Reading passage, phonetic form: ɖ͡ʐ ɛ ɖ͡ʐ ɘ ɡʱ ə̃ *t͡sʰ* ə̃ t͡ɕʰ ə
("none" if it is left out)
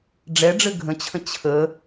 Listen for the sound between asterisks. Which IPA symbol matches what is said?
t͡ɕʰ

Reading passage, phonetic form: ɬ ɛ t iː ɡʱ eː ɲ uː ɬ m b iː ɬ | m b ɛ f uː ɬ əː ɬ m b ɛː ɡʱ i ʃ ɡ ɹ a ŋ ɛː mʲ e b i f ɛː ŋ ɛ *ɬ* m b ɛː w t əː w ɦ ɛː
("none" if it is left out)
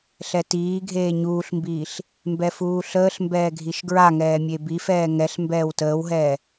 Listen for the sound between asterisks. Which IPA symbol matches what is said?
ɬ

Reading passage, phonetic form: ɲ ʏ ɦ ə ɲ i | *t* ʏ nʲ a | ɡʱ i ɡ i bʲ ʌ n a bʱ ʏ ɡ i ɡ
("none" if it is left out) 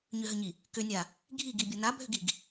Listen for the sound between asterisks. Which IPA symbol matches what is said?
k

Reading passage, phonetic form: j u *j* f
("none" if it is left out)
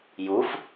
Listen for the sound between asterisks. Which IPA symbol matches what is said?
none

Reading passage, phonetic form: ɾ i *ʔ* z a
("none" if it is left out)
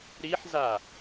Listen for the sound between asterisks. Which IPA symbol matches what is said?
ħ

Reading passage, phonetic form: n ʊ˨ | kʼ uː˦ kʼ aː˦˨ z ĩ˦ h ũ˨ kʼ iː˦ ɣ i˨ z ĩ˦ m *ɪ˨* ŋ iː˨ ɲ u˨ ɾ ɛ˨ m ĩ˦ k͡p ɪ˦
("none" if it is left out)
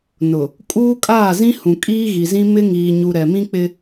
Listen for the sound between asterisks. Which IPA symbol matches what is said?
ɪ˦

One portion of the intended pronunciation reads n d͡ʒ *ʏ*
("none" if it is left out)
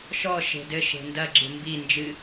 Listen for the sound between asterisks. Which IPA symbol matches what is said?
ɨ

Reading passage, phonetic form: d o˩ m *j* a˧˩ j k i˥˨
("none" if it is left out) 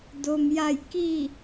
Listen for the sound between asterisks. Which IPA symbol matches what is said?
j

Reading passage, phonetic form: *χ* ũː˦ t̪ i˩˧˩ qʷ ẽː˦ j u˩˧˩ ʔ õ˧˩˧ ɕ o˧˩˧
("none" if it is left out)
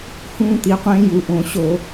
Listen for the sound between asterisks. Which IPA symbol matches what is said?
h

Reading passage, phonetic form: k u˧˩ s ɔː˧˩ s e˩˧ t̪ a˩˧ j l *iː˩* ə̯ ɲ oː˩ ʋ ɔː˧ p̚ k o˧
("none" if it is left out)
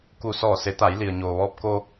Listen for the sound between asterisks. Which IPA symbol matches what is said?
i˩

